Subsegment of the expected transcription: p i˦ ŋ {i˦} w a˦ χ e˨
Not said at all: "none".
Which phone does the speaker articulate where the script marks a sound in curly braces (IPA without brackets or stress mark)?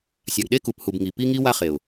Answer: i˦